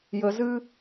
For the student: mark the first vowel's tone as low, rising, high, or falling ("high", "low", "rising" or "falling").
low